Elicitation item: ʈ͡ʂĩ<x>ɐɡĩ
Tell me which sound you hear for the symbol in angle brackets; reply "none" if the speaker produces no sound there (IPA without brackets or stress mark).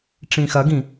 x